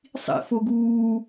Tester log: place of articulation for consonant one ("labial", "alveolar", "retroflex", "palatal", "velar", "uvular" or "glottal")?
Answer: alveolar